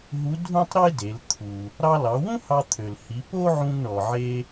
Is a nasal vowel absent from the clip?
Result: no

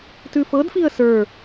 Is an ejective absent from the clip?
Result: yes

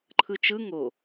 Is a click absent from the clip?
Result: no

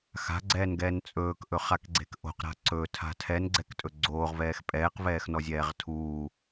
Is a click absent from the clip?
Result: no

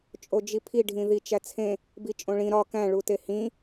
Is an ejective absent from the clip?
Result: no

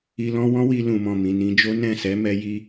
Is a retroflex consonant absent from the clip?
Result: yes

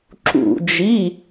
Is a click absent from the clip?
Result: no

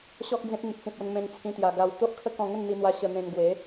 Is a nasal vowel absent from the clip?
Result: no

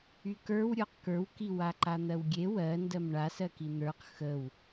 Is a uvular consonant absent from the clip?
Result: no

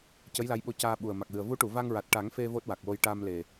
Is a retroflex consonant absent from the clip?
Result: no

